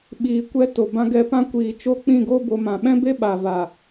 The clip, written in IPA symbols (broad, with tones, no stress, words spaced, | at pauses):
ɓiː˨kʷɛ˧ to˨bã˧ɡɛ˧pã˦ kʷiː˨t͡ʃo˦k͡pĩ˦˨ɡo˦ bo˧mã˨ ɓɛ̃˦be˦ ɓa˨va˨